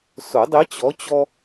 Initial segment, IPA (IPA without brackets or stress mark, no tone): s